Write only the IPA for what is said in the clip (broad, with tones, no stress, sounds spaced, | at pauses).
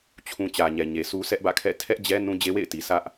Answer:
t͡ɕʰ ũ˨ t͡ɕ ä˨ ɲ ɛ˨ ɲ e˨ s u˦ s ɛ˦ ʔ b ä̰˦˨ kʰ ɛ̰˦˨ tʰ ɛ˦ ʔ d͡ʑ ɛ˦ n ũ˦ d͡ʑ e˦ w ḛ˦˨ ɪ̯ t i˨ s ä˦ ʔ